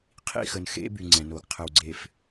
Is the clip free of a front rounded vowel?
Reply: no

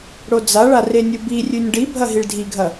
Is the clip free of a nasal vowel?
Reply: yes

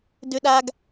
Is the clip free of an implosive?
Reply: no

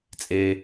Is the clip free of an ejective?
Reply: no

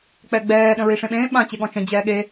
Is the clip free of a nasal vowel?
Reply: no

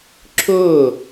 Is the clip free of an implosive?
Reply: yes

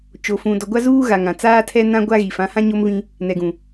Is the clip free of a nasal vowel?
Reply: no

